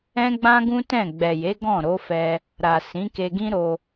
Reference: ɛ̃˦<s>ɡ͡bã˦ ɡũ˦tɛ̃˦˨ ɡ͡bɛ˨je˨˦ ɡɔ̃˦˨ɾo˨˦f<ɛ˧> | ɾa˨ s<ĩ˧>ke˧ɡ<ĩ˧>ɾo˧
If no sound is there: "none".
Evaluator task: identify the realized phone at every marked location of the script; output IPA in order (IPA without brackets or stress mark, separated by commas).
none, ɛ˧, ĩ˨˦, ĩ˦